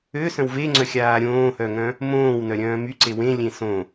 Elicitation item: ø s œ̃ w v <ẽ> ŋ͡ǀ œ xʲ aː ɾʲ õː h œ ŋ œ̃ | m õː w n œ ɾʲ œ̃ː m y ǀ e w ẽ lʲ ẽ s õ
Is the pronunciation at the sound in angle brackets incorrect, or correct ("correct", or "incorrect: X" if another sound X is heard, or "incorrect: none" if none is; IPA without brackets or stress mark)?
incorrect: e